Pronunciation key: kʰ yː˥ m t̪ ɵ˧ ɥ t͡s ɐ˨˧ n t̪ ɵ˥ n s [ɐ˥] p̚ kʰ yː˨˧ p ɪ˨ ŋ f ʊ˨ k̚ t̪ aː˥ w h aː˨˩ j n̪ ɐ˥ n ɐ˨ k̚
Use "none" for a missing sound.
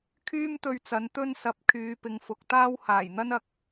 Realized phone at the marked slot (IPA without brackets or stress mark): ɐ˧